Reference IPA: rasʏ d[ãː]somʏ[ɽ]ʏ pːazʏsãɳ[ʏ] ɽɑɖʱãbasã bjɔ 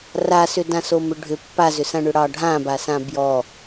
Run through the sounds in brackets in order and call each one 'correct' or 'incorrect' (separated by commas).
incorrect, incorrect, correct